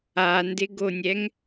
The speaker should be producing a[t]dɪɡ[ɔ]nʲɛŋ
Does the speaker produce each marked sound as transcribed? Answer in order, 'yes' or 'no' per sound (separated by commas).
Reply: no, no